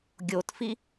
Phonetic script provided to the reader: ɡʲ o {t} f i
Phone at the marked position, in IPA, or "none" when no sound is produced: t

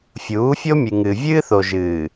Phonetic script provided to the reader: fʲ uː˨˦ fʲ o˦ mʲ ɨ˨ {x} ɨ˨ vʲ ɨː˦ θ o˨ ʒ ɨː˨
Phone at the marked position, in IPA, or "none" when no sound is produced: ŋ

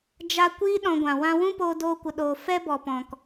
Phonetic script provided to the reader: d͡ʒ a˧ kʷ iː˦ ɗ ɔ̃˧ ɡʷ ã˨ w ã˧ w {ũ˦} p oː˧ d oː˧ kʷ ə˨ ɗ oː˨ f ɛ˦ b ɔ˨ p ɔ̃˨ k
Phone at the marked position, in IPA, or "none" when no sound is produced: ũ˦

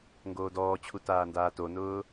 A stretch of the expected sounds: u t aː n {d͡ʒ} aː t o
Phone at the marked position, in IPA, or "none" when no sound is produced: d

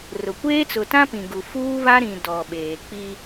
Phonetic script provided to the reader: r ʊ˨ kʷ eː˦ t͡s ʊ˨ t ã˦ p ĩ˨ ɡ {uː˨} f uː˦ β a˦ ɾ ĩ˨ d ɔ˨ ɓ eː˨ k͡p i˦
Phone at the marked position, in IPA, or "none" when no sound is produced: u˨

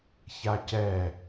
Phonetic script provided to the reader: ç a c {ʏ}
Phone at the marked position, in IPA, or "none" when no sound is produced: ɛ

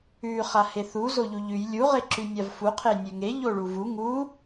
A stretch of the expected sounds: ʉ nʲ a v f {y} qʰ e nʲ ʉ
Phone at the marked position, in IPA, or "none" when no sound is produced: u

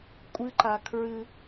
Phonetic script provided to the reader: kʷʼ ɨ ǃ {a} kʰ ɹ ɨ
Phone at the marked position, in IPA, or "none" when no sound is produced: a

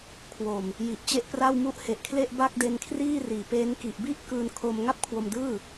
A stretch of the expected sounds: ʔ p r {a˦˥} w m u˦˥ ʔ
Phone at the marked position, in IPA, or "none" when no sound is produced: a˥˩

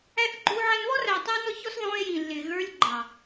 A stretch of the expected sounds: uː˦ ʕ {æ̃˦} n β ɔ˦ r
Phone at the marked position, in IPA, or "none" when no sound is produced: æ̃˦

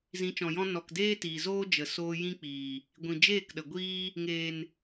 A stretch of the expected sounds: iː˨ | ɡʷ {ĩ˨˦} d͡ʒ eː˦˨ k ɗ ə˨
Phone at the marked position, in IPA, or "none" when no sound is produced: ĩ˨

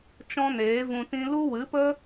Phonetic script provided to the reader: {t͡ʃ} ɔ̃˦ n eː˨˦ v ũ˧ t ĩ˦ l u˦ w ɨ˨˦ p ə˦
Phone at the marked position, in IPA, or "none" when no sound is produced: t͡ʃ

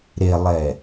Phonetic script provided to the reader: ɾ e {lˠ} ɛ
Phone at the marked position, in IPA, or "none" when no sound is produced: lˠ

